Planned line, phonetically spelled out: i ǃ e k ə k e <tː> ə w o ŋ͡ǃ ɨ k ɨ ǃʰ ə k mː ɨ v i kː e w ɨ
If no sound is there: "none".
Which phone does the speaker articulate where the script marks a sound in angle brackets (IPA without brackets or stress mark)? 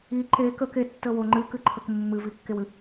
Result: tː